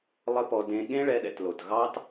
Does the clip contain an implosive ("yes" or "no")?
yes